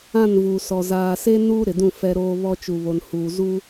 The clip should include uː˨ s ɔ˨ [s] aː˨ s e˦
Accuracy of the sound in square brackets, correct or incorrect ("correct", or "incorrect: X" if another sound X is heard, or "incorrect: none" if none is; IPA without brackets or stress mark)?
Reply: incorrect: z